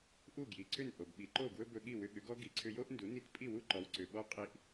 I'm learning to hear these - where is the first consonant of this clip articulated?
throat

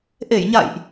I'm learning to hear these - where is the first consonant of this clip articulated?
throat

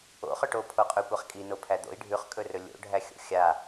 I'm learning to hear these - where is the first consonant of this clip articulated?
uvula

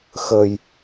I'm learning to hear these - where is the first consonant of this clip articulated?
velum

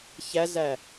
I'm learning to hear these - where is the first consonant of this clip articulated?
palate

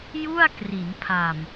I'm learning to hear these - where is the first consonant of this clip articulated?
palate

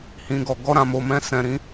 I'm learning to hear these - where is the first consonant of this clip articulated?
throat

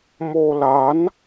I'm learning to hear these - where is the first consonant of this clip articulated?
lips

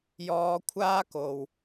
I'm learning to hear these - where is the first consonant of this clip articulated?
palate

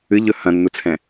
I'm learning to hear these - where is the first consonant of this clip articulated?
palate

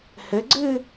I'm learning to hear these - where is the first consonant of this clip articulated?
throat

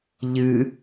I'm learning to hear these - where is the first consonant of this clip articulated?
palate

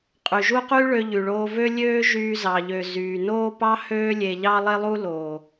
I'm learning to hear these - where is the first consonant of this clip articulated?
uvula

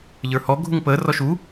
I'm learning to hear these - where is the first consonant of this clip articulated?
palate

